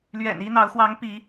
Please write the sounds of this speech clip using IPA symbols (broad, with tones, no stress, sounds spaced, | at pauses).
l ɥ ɛ̰˨˩ n i˦ n̪ ɑ˨˦ ʊ̯ x w ɑ˨˦ ŋ p i˨˦